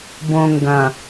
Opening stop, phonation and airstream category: plain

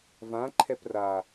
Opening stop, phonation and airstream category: click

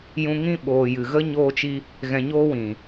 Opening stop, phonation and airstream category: implosive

